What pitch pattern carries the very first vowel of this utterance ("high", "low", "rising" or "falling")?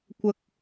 high